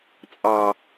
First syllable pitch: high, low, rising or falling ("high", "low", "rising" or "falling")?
low